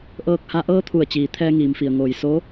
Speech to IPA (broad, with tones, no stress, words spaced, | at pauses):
ʔɤː˧k̚ha˧ ʔɤː˧˥t̪ʰu˧˩ə̯ t͡ɕiː˩ t̪ʰɛː˧ŋiː˩mfi˩ə̯ ŋoː˩j so˧˥